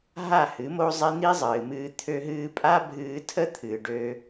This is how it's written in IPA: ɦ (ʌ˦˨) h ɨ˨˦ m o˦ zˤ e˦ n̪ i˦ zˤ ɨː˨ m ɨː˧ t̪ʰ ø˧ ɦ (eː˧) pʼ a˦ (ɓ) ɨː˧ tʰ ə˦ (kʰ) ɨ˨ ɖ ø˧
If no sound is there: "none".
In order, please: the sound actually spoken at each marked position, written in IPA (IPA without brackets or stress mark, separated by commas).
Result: a˦˨, ɨː˧, bʱ, t̪ʰ